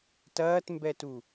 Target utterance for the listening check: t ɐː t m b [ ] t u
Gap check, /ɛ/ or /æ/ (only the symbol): ɛ